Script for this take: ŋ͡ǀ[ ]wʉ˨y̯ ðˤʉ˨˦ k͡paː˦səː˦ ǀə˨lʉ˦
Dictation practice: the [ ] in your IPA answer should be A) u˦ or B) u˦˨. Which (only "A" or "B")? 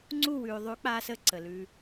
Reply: B